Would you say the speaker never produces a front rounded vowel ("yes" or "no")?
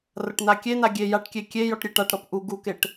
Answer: yes